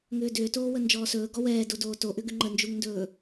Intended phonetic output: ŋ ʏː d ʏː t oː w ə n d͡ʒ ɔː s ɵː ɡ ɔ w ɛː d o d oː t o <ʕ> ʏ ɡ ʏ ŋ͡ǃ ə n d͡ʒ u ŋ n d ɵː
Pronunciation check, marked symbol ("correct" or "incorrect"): incorrect